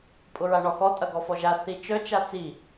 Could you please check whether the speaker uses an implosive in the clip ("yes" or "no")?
no